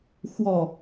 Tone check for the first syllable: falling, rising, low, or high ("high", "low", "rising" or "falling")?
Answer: falling